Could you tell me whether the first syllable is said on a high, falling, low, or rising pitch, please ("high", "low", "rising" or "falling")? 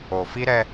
low